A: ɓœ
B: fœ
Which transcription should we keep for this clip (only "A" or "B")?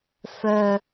B